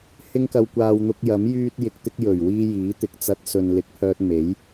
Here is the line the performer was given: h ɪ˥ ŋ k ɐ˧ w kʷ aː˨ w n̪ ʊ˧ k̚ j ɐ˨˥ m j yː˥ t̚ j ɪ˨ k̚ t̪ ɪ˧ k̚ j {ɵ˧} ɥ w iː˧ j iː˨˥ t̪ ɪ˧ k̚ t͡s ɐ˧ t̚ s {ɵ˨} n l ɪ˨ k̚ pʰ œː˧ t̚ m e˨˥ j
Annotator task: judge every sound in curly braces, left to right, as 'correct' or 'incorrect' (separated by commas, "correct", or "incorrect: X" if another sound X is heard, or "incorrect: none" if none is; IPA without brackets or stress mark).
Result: incorrect: ɵ˨˩, correct